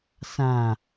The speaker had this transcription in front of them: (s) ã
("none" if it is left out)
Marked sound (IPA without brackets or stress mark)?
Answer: s